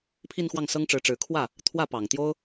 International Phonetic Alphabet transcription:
pʰ i˥˧ n x w ɑ˥˩ ŋ s ɤ˥ ŋ ʈ͡ʂ ɻ̩˧˥ ʈ͡ʂ ɻ̩˧˥ kʰ w ä˥˩ | t̪ʰ w ä˥˩ p ɑ˨˩ ŋ t̪ j o˥ ʊ̯

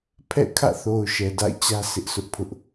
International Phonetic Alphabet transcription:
pʰ ɛ̰˦˨ kʰ ä̰˦˨ θ o˨ ʊ̯ ʃ ɛ˨ d a̰˦˨ ɪ̯ t͡ɕ ä˦ s ɪ˦ ʔ s ʊ˦ ʔ pʰ ʊ˦ ʔ

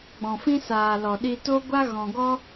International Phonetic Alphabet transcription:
ɡ͡b ɔ̃˨ f ĩ˦ s aː˨ l ɔ˨ ɗ i˧ t o˦ ɡʷ a˦ ɣ ɔ̃˨ ɡ ɔ˦

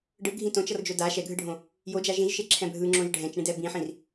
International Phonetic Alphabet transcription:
ɖ ɯ ɡʱ ĩ t õ t͡ʃ ʌ r d͡ʒ o d a ʃ ɛ ɡʱ ɯ ɖʱ õ | j o d͡ʒ a ʒ ĩ ʒ ʃ e ǁʰ ɛ̃ bʱ ɯ ŋ͡ǁ õ ʒ ɖʱ ɛ̃ t͡ʃ ɳ ĩ d ɛ b ĩ ħ ĩ r

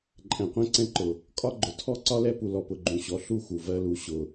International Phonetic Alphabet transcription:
ǃʼ ɛ̃˨ qʷ ɛ̃˦ ǀ ɛ̃˦ ǃ ʊ˨ | kʼ ɒ˦ ɡ͡ǃ ʊ˨ tʰ ɔ˦ ǀ ɒ˦ l ɛ˦ p u˨ l ɔ˨ p ʊ˨ ɡ͡ǃ ũ˨ ɕ ɔ˨ ɬ u˦˨ x u˨ v ɜ˦ l u˨ ɕ ʊ˨

